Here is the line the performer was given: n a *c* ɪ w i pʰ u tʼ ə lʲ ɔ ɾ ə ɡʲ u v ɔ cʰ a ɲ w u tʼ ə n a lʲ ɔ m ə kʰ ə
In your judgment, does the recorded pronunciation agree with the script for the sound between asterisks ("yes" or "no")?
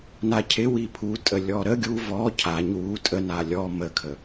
no